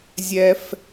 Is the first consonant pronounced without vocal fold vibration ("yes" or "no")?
no